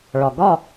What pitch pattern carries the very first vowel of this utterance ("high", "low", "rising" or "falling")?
low